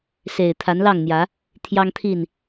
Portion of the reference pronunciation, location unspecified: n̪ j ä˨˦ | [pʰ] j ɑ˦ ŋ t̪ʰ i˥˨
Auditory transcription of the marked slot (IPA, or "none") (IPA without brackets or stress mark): t̪ʰ